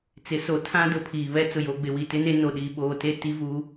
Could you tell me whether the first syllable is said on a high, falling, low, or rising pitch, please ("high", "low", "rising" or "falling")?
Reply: rising